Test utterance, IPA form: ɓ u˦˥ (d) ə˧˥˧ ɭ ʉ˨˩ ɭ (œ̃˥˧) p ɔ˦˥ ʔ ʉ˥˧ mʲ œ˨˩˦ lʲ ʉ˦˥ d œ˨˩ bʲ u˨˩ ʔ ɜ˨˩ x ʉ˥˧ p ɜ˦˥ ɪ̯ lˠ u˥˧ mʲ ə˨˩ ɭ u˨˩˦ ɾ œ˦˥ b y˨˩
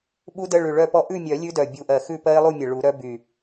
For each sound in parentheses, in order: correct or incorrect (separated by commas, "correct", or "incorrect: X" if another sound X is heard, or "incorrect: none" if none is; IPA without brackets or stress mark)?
correct, incorrect: œ˥˧